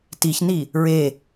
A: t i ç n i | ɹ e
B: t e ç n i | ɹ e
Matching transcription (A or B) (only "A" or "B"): A